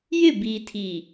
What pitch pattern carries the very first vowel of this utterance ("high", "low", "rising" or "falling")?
falling